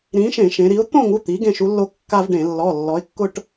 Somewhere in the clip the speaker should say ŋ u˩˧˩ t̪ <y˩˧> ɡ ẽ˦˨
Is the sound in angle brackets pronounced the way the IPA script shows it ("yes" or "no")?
no